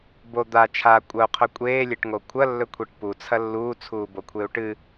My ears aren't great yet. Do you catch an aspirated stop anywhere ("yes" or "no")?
yes